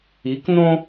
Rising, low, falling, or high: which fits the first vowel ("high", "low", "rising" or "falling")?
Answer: rising